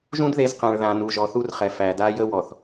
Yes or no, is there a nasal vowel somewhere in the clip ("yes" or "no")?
yes